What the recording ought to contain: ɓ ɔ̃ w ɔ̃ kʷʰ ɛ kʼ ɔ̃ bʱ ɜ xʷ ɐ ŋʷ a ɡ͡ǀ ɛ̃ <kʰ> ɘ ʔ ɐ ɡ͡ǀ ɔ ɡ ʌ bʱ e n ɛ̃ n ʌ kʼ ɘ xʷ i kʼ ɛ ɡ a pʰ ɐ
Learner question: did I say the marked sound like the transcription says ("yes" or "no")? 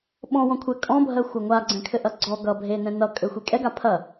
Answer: yes